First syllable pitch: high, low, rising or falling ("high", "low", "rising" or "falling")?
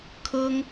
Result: high